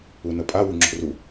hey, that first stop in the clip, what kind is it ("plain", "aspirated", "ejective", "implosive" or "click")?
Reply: ejective